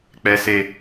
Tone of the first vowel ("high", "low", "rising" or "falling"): low